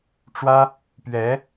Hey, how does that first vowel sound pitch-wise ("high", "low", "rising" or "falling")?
high